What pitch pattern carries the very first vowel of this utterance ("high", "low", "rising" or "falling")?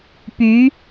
rising